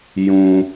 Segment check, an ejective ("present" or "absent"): absent